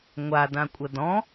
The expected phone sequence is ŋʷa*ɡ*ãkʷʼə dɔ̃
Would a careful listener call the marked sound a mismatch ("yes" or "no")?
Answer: yes